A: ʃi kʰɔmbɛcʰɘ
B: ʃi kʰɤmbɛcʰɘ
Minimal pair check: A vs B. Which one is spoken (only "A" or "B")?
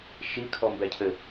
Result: A